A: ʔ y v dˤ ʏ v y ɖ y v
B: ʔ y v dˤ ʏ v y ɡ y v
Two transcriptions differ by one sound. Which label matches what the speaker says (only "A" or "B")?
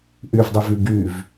B